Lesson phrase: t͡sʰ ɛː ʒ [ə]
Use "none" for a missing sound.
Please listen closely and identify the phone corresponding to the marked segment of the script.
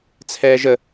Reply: ə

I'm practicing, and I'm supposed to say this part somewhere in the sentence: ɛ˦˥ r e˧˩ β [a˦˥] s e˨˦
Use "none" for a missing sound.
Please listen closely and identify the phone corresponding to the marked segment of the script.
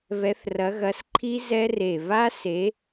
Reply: a˦˥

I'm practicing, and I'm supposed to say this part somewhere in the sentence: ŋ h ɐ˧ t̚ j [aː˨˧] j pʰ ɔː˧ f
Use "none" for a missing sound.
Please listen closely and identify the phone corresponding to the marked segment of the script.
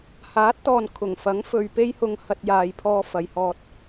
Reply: aː˨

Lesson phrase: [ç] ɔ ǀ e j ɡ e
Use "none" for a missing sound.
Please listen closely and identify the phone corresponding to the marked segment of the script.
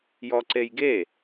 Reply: j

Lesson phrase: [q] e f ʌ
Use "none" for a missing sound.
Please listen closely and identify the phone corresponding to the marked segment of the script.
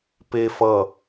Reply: p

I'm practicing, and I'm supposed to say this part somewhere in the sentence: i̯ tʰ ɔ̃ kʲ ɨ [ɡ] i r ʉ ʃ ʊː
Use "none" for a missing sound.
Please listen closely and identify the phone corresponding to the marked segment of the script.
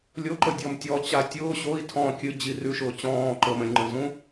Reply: d͡ʑ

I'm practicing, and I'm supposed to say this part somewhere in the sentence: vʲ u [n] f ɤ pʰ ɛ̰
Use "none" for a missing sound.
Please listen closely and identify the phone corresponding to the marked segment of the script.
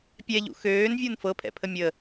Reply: n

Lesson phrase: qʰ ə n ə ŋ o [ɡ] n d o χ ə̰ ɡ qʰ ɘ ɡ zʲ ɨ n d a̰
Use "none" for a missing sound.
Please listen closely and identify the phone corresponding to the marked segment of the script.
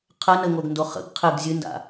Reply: ɡ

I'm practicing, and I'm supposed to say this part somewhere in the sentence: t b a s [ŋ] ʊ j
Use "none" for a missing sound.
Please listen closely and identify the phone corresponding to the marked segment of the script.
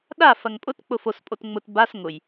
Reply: ŋ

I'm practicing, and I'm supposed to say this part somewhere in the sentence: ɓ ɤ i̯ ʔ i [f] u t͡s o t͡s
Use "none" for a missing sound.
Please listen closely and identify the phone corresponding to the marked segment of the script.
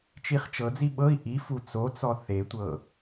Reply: f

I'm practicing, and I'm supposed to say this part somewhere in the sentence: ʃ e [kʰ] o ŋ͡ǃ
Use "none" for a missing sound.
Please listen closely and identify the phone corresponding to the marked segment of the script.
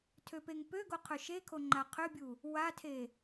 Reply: kʰ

